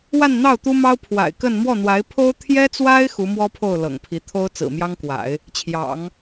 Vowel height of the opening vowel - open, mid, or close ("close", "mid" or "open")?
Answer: open